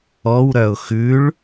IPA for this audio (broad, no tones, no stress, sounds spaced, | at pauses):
ɔ w ɾ œ ʊ̯ x ʉ ɭ